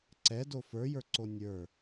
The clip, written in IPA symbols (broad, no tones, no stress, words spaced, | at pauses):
ǀɛdo fə˞jə˞ǀo nʲə˞